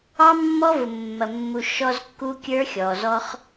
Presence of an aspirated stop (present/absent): absent